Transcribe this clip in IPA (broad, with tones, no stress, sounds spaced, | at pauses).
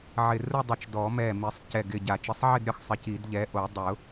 ʕ ɪ˧˩ r ʊ˥˧ dˤ ʊ˧˩ t͡ʃ d ɔ˨˩˦ m ɛ˧˩ m i˨˩˦ sˤ c ɛ˧˩ ɡ ɪ˧˩ ɟ a˨˩˦ t͡ʃ ɪ˨˥ sˤ ʕ ɪ˥˧ d ɾʲ ɔ˥˧ x sˤ ɪ˨˥ c i˨˩˦ d ʎ ɛ˨˥ ʔ o˨˩˦ dˤ ʊ˨˩˦